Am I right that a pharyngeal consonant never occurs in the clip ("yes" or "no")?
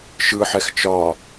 no